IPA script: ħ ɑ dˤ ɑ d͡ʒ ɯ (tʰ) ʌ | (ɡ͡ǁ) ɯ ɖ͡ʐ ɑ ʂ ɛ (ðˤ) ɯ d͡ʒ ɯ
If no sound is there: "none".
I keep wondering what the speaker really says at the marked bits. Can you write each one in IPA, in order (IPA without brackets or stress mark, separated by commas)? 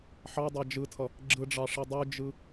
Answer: tʰ, ɡ͡ǁ, dˤ